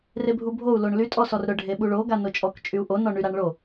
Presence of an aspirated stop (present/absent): absent